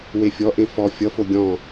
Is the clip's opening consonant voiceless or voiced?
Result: voiced